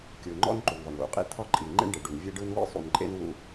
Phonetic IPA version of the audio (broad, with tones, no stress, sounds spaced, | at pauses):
kʲ ɯ˨ ŋ͡ǃ ɔ̰˦ n ǃ u˨ ɳ ðˤ ɯ˨ ɳ w ṵ˨ qʼ ḭ˦ t̪ʰ ɔ˦ ǃʼ i˨ ŋ͡ǃ ḛ˦ ɳ ɖ e˨ ɖ u˨ n vʲ e˦ ɖ ɯ˦ n w ḭ˦ sˤ ṵ˨ n ǃʼ ḛ˦ n w ṵ˦